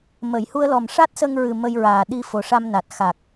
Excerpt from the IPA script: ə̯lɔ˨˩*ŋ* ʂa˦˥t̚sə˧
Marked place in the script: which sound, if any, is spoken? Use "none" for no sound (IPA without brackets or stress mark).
m